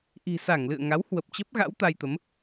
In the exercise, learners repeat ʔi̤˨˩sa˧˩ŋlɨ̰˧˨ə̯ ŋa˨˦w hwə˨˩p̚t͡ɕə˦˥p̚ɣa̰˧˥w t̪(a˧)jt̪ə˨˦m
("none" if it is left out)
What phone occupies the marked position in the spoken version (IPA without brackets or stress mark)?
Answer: a˧